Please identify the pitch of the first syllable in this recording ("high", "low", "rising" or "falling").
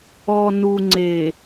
low